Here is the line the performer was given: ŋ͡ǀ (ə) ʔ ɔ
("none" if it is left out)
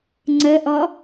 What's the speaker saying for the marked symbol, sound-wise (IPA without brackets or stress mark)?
ə